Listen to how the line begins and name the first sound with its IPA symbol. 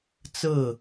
t͡s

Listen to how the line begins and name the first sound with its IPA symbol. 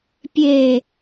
pʲ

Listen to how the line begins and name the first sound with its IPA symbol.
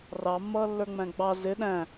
r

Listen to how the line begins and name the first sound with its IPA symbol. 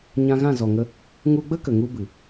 ɲ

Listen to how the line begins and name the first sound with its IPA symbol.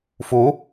f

